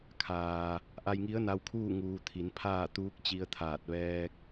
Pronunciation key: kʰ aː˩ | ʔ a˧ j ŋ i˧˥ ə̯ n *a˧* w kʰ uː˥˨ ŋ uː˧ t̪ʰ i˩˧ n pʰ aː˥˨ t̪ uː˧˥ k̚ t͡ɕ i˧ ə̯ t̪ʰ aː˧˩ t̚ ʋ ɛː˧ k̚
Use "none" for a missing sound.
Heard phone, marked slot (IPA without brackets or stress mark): a˧